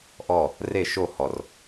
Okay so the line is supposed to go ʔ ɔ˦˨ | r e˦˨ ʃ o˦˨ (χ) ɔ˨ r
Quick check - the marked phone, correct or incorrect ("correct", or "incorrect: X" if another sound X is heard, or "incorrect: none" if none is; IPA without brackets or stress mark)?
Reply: incorrect: h